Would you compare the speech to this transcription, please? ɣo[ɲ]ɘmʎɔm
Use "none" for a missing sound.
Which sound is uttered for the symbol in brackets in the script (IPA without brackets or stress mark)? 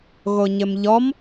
ɲ